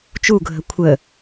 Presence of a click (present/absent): absent